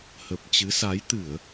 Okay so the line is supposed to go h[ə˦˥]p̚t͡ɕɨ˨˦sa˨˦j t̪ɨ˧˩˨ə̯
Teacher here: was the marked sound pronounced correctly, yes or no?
no